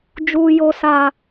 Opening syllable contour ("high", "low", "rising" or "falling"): low